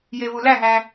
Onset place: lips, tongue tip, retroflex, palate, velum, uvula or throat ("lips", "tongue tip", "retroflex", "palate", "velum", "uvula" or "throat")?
palate